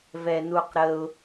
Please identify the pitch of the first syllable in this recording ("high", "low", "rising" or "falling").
low